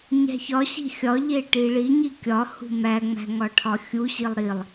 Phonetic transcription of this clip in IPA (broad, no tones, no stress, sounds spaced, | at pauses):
ɲ æ̤ ç ɒ ɕ i̤ xʲ ɒ ʎ e ʈ i ɭ i ɲ i kʲ ɒ h ṳ m æ ŋ͡m æ̤ ŋ ɒ ʈʰ ɒ xʲ u ɕ i lˠ ɾ i lˠ